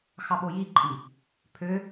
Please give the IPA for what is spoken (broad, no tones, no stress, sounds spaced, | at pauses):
x ɑ ɓ o j i ǃʼ i | pʰ ø